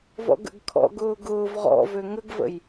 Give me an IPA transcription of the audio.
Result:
vɔ̰ɡə̰ɡkʰɔ̰ ɡʊːɡʊːv ʁɔ̰vø ŋəɡvə̰j

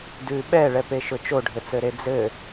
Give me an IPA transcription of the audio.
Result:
dʉ ɓɛɭɛpeʃʊ t͡ʃoɖʱɘt͡sɘɾe d͡zɘ

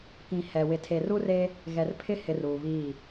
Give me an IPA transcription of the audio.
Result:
kĩ˨ hɛ˨ wɪ˨tʰe˨ru˦re˦ | ɣɛ˨r pʰɪ˦hɪ˨r uː˨βiː˦˨

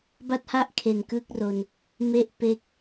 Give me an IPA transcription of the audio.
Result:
ba˥˩t̚ha˥˩ʔkʰe˨˩n kɯ˥˩k̚ro˧n | me˥˩ʔ pe˥˩k̚

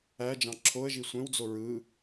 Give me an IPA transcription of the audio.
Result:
æd͡ʒɑ̃ ǁʰoə̯ʒi sʷẽwd͡zo ɹɯ

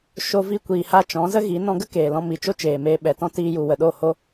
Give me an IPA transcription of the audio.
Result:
ʃo˧ vi˧kʷiː˨ha˧ t͡ʃɔ̃˨˦zə˦ɣi˨˦ nɔ̃˧ɡə˦ keː˨lɔ̃˧ mi˨t͡ʃo˦t͡ʃeː˨meː˧ ɓɛ˨tɔ̃˦ tiː˦ju˧ wə˨ɗo˦˨ ho˦

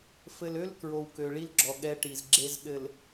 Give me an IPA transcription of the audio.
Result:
fɘ˨lø˦l kɹo˨wkø˨ɭi˦lɡ͡ǁɔ˨ ɠɛ˦ʈi˨zɡ͡ǁe˦z ɗɘ˨l

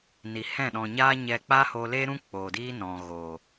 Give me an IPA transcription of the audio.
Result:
ni˨hɛ̃˦˨ ɗɔ̃˨ɲaː˦ɲɛ˧ k͡pa˦hoː˧leː˦ɾũ˦ k͡poː˨diː˦nɔ̃˨ ɣoː˨

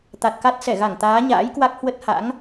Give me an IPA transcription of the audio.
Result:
t̪a˨˩t̚ka˦˥t̚ sɛ˧˩ɣa˧˩ŋ t̪aː˨˦ɲa̰ː˧˥jkwa˦˥k̚ hwə˦˥t̚ha̰˧˥ŋ

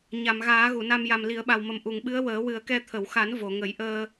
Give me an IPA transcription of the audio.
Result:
ɲa˨˩˨mɣaː˨˩˦ ɣu˨˩˨na˧m ja˨˩m li˨˩˦ə̯ɓa˨˩wmə˨˩m ʔu˨˩˨ŋɓɨ˧˥ə̯ wəː˨˩˦wɨ˨˩˦ə̯kɛ˧ t̪ʰə˨˩˨wxa˨˩˦n vo˨˩˨ŋə˨˩˦jʔəː˧

